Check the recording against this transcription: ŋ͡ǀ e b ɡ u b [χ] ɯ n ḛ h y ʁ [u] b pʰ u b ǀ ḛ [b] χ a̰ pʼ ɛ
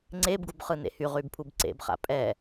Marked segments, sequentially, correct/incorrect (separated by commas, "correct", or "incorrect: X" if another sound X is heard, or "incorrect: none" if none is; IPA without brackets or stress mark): correct, incorrect: y, correct